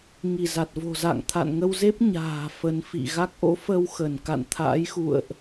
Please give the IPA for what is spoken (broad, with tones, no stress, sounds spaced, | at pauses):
ŋ i˧˩ z a˨˩ t̚ v o̤˨˩ z a̰˧˨ ŋ t̪ʰ a̰˧˨ n ŋ ə˧ w z e˦˥ p̚ ɲ a̤ː˨˩ f ə˨˦ n f ḭ˧˨ ɣ a˦˥ k̚ ʔ o̰˧˥ f ə˧ w x ə˧˩ n k a̰˧˨ n t̪ʰ a̰ː˧˥ j x ṵ˧˨ ə̯ ʔ